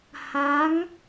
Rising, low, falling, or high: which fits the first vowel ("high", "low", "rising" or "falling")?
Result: rising